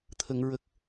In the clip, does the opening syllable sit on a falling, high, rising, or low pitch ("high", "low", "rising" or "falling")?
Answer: low